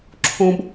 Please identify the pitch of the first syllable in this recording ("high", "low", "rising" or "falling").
high